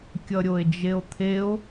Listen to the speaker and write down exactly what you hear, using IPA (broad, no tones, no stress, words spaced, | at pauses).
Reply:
kʲʌɾʲoe̯d͡ʒeo̯t̪ʰeo̯